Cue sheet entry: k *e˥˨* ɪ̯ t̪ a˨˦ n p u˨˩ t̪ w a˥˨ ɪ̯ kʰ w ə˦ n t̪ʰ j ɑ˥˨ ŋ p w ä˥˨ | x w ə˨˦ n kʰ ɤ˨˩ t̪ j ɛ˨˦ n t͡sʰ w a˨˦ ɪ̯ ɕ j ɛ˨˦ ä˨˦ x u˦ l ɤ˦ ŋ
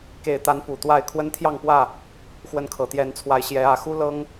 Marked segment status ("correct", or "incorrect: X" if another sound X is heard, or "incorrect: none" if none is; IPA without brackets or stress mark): incorrect: e˨˩